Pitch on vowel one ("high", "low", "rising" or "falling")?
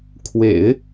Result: low